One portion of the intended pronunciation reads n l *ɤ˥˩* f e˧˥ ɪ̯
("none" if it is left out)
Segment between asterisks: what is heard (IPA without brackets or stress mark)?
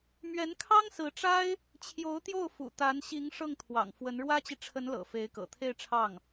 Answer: ɤ̰˨˩